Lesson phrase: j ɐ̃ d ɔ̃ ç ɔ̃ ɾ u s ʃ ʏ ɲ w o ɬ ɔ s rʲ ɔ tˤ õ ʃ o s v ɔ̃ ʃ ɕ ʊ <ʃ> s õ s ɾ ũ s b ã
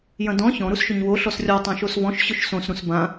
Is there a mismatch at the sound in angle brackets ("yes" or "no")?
no